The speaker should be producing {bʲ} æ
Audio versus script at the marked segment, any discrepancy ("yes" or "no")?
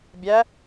no